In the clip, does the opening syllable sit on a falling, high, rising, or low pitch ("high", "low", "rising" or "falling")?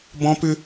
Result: high